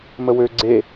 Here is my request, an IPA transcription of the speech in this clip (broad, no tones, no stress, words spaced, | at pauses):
məwø ɡ͡ǀe